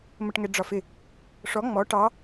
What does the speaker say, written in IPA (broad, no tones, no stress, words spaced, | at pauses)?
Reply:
məʈŋɛɖ͡ʐɒfɪ | ʂɔ ŋ͡mɔ ʈɑ